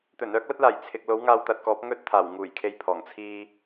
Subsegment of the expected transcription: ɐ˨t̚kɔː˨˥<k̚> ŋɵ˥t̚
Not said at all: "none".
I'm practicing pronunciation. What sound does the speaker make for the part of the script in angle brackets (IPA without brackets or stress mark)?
p̚